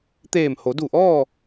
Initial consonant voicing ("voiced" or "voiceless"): voiceless